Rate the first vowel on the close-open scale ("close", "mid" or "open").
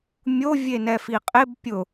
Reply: mid